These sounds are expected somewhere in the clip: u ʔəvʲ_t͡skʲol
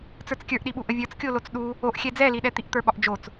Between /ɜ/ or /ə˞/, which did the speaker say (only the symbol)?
ə˞